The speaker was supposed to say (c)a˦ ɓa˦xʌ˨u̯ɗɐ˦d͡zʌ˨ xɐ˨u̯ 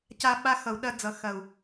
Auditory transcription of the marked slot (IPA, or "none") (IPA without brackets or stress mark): c